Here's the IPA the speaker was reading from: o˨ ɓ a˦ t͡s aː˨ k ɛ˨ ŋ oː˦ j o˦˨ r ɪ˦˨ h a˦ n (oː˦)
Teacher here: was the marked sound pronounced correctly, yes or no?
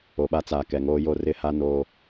yes